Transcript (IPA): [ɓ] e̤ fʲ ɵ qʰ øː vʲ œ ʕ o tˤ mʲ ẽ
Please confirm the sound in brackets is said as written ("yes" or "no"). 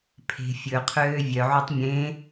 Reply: no